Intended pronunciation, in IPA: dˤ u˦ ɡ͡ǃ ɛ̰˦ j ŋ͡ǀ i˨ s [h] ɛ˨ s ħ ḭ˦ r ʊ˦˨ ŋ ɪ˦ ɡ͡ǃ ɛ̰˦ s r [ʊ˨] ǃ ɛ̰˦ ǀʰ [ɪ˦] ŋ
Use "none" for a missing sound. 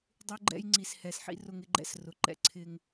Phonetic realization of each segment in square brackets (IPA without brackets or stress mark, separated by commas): h, ʊ˨, ɪ˦